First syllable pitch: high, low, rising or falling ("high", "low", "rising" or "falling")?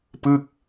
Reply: falling